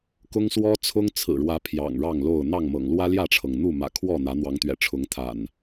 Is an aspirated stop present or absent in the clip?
present